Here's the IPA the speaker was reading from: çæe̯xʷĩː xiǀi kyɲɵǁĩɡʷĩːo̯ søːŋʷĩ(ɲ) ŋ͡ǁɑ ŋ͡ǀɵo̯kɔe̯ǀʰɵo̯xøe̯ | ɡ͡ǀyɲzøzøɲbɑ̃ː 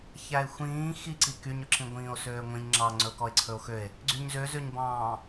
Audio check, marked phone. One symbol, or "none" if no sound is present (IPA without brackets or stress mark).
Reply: ɲ